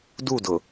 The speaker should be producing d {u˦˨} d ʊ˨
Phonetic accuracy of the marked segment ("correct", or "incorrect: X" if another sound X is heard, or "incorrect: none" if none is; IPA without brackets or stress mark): correct